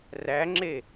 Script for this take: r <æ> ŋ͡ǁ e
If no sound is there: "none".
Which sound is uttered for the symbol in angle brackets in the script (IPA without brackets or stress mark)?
æ